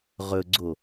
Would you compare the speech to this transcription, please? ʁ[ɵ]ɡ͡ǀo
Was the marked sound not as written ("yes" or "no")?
no